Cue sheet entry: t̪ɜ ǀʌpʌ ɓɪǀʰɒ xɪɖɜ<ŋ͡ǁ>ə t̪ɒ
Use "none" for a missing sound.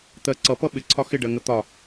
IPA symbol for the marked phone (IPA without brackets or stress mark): ŋ